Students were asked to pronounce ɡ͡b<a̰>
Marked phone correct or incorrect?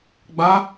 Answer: incorrect